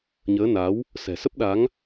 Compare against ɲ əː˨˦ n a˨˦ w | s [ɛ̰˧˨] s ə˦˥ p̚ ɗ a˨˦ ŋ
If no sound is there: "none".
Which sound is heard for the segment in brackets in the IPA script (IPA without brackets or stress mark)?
ɛ̤˨˩